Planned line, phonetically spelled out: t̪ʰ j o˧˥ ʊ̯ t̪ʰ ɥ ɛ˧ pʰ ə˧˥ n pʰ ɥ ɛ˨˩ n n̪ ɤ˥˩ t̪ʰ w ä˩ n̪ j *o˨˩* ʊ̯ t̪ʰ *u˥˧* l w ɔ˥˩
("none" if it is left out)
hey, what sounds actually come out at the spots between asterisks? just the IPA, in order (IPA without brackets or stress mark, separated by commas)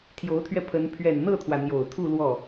o˨˩, u˥˧